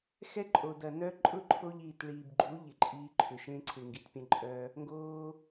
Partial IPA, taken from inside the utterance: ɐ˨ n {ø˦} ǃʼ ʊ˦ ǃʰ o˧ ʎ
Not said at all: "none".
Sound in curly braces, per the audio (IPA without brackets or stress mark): œ˦